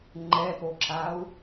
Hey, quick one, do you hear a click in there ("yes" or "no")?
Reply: yes